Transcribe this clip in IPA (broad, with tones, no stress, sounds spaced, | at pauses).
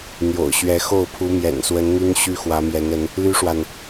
n̪ j o̰˨˩ ʊ̯ ɕ ɥ ɛ˨˦ x o˥˨ ʊ̯ pʰ u˨˦ m j ɛ̰˨˩ n s w ə˨˦ n n̪ y˦ n ɕ y˦ x w ä˨˦ m j ɛ˨˦ n ə˨˦ n | l y˦ ʂ w a˨ n